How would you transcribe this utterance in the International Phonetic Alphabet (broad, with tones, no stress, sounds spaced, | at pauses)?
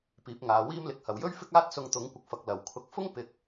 p iː˨˥ p̚ ŋ aː˨˧ w iː˥ m l ɪ˨˥ k̚ h ɐ˨ w j ɵ˥ ɥ f ɪ˥ k̚ aː˥ t̚ s ʊ˧ ŋ t̪ ʊ˨˥ ŋ kʷ ɪ˨ k̚ f ɐ˨ k̚ l ɐ˨˩ w kʰ ʊ˧ k̚ f ʊ˥ ŋ p ɪ˨ k̚